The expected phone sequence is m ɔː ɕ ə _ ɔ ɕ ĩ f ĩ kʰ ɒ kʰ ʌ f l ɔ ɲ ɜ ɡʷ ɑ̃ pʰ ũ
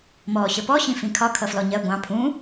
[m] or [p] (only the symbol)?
p